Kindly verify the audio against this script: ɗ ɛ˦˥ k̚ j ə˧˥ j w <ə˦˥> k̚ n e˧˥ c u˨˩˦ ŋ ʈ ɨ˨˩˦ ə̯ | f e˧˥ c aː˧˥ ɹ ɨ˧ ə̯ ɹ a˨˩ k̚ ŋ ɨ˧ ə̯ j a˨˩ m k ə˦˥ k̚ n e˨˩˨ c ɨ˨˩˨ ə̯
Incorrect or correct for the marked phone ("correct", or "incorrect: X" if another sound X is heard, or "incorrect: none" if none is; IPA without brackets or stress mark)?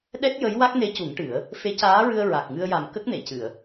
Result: incorrect: a˦˥